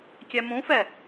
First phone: kʲ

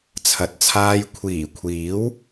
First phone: t͡sʰ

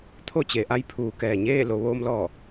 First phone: t̪ʰ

